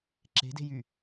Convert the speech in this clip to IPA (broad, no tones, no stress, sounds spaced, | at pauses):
ǁ e̤ d e̤ j y